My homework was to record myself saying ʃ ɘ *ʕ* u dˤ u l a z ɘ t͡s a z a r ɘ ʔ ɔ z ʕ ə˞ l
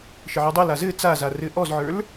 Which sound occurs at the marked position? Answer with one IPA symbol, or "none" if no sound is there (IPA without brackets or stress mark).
ʕ